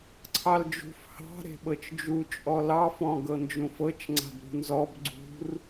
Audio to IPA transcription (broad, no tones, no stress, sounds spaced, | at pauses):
ǀʰ ɑ l d͡ʒ ṳ f h ɑ̤ ɾ e̤ ɓ ɤ t͡ʃ d͡ʒ u t͡ʃʼ ɔ l ɑ f ɔ̃ ɡ ɤ n d͡ʒ ũ f ɤ t͡ʃ ŋ͡ǀ a̤ b ɾ ṳ n z ɔ b ɡ͡ǀ ṳ r